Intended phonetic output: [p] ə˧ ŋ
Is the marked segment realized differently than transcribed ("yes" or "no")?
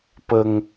no